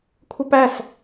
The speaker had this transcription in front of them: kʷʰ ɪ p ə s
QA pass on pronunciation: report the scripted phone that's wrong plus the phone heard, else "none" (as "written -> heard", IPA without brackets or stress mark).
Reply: ə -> æ